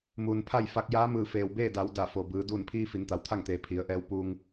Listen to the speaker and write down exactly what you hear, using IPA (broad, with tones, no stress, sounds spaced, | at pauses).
m uː˩ n pʰ a˥˨ j f a˧ k̚ j aː˧˥ m ɯː˧˩ f eː˩ w b eː˥˨ d a˩˧ w d a˧˩ f o˩ b ɯː˩˧ d uː˧˩ n pʰ iː˧ f i˩˧ n t̪ a˩˧ w t̪ʰ a˥˨ ŋ t̪ eː˩ pʰ i˩˧ ə̯ ʔ ɛː˧˥ w p uː˧ ŋ